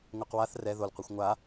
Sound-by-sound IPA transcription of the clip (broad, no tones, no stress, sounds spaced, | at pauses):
ŋʷ ɨ q w a θ r ɛ ð o l qʷ i xʷ ŋʷ a